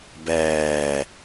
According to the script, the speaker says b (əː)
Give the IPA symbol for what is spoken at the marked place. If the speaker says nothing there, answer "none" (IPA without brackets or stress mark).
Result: ɛː